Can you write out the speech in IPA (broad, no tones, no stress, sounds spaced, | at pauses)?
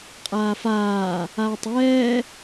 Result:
qʼ aː f aː | aː tˤ ɛː